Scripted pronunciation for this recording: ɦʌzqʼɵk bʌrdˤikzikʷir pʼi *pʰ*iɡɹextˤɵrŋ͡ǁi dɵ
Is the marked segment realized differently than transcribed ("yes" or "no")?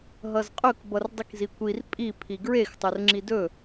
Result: no